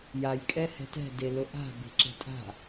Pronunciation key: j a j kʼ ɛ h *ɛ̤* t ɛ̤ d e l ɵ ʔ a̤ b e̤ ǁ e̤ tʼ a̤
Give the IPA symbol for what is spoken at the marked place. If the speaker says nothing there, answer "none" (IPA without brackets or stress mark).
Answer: ɛ̤